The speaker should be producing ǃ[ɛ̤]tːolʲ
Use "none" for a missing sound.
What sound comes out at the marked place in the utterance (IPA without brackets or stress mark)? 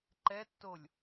ɛ